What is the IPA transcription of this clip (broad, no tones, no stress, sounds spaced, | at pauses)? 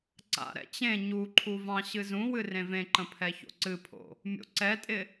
ǀ a̰ ɾ ɛ̰ t͡ɕ ẽ ɲ u ǃʰ u v ɑ̃ ɕ ɨ z ũ w ɨ r ẽ v ẽ ǃ ə̃ pʰ ɛ ç o̰ ǀ ɨ pʰ o̰ | mʲ o̰ ǀ ɛ tʼ ɪ